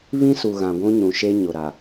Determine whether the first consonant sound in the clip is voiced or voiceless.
voiced